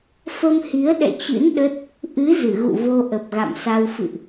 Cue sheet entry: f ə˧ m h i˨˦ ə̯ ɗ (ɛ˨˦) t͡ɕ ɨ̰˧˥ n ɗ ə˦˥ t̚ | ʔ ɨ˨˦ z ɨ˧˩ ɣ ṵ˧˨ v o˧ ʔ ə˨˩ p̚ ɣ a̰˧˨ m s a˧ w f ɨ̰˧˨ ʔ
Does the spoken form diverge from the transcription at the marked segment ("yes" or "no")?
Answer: yes